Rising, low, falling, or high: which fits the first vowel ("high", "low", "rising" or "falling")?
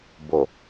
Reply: low